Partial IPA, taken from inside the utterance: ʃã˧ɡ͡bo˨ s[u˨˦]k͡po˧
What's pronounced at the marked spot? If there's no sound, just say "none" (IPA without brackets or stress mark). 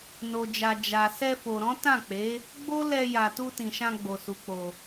u˨˦